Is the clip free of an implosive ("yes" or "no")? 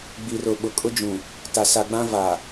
no